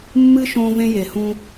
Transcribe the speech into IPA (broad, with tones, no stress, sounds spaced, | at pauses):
mː ɨ˦ ʃ õː˦ v ẽ˦ j e˨ h ũ˦